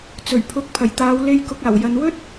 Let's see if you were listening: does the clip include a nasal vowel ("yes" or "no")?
no